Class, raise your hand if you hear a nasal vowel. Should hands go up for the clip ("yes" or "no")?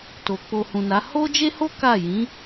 yes